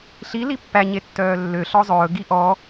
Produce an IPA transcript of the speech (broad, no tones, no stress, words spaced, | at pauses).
ɬi lipːæ ɲetːœːlːø ɬɔzˤɵː ɡiʔɔ